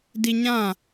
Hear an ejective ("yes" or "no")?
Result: no